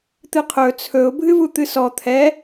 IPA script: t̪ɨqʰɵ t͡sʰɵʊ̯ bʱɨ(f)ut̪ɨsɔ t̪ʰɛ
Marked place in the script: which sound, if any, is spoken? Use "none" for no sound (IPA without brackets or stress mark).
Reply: v